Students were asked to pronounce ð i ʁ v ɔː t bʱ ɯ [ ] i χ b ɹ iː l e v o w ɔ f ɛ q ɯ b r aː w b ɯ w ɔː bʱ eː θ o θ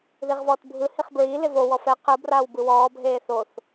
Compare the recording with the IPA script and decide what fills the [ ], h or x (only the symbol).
h